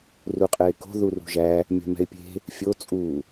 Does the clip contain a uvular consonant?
yes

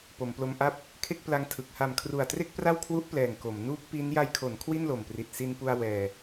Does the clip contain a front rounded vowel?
no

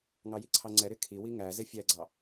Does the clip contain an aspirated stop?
yes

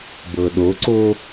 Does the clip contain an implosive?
yes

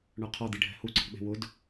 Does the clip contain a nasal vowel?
no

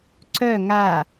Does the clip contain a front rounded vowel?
yes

